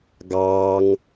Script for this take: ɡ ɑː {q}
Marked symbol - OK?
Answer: no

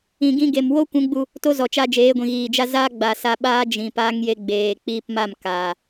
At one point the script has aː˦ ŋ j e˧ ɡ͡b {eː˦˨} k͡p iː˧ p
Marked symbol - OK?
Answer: no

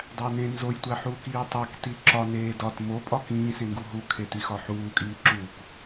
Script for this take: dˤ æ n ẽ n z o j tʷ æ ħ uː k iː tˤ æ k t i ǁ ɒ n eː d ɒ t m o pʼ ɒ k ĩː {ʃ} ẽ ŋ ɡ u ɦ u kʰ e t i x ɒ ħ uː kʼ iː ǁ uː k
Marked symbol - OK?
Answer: no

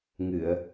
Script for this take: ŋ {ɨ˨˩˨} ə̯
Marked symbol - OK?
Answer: yes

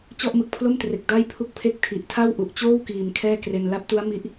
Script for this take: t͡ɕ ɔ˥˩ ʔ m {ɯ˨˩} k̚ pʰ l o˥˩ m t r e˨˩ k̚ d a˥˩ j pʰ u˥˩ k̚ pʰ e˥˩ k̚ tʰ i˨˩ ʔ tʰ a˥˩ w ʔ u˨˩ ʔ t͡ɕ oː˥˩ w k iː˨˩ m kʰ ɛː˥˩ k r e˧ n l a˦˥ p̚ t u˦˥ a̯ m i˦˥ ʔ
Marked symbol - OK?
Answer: yes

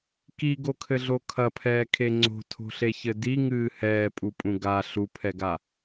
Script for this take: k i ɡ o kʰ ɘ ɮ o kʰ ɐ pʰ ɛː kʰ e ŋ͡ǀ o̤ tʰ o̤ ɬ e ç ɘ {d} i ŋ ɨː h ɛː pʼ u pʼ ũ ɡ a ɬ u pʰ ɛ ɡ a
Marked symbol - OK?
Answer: yes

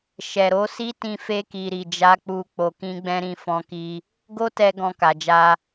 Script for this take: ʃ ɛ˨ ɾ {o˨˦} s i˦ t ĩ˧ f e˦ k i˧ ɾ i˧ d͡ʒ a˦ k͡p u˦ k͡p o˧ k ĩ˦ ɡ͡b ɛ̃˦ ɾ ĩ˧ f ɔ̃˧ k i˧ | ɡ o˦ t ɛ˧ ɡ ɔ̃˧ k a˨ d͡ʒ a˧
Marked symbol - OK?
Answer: yes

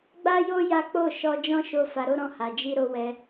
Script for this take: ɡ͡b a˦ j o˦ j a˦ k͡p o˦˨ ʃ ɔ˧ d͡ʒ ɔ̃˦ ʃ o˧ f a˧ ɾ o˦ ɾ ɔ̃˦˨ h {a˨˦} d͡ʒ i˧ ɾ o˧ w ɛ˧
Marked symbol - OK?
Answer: no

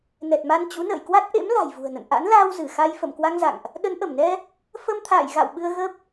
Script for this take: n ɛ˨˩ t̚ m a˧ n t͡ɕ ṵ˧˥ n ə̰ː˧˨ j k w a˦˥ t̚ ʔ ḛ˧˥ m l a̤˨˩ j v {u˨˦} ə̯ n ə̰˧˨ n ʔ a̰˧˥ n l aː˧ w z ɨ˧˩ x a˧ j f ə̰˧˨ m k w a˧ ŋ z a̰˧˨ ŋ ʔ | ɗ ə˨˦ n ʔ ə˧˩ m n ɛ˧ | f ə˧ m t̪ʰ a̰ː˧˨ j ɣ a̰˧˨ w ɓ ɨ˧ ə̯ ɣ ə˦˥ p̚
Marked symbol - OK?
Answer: no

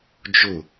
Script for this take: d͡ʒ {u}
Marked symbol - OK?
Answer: no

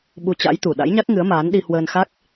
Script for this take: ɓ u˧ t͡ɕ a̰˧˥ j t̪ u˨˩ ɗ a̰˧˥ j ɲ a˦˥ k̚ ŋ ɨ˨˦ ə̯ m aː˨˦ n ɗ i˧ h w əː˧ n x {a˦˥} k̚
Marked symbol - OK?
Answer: yes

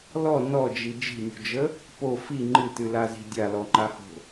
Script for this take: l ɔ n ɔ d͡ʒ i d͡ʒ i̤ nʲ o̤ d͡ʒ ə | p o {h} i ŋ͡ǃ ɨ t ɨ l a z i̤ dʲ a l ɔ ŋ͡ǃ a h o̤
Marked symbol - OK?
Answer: no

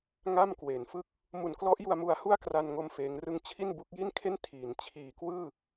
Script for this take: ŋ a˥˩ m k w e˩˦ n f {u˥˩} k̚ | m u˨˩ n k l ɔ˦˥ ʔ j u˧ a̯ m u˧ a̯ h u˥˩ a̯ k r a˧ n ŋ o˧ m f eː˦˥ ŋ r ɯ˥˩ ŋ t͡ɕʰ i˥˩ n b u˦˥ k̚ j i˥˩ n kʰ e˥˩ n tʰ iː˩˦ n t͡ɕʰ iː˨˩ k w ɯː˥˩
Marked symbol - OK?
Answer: no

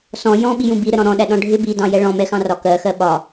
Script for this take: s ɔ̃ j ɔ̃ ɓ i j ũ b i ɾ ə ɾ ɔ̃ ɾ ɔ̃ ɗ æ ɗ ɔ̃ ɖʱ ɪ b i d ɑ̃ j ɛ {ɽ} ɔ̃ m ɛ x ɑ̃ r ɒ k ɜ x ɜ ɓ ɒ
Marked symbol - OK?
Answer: no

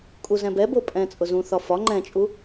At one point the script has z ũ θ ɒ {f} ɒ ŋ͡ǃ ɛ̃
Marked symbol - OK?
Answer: yes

